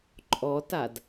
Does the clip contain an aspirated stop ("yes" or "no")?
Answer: no